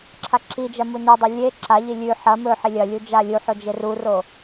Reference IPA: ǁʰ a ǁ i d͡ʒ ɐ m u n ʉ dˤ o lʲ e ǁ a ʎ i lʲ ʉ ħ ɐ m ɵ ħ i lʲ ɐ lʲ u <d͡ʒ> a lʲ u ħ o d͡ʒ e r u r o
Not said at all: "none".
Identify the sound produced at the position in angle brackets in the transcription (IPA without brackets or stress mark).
d͡ʒ